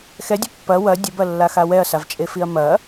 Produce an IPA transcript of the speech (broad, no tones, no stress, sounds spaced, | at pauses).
x ɛ dʲ ɐ pː ɐ w ɐ dʲ ə b ɐ lː a x a w ɛ ɐ̯ s a v t͡ʃʼ e f i ɐ̯ m ɐ